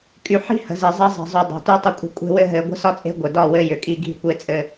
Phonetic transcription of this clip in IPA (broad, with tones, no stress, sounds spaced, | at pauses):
kʼ y˨ ħ i̤˦ h ə̤˨ z i˨ zˤ ɘ˦ zˤ i̤˨ zˤ y˨ dˤ e̤˨ t y˦ tˤ ɘ˦ kʷʼ ə̤˦ kʷʼ e̤˦ w ɘ˦ ɦ ɘ˨˦ ɡʷ ə̤˦ s ɒ˦ t͡sʼ e̤˦ ɡʷ ɘ˨ d ɒ˦˨ w ɘ˦ j ʏ˨ kʼ i˦ ɡʱ i̤˦ kʷ e˦ t͡sʼ ɘ˦